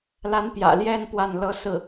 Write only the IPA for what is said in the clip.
la˧˥n pjä̰˨˩ljɛ˥˧n pwa˥˩nlɤ˥ sɹ̩˥˩

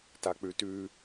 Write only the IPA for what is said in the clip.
tak͡pʉtʉ

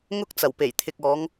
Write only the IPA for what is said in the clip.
ŋʊ˥k̚ t͡sɐ˨˩wpe˨˩jt̪ʰɪ˨k̚ ɔː˨˧ŋ

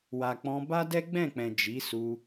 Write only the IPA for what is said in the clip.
wa˨k͡pɔ̃˧ba˦ dɛ˦ ɡ͡bɛ̃˦˨k͡pɛ̃˨ d͡ʒi˨˦ su˧

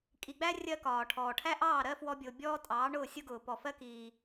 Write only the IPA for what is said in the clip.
kʼi˨ɡ͡bæ˦ rʲɜ˦kɒː˨ʈʰɔː˨ ʈʰæ˦ʔɑː˦˨ɾɜ˦ fwɔ˦bʲʊː˨ bʲɔː˦tʼɑː˨˦ɳʊː˦˨ sʲʊ˦ɡʊː˨ pɔ˨fɜ˦ kiː˦

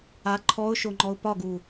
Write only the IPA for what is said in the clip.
a ǃʰɔʊ̯ʃoŋ͡ǃɔʊ̯ pɒɡu

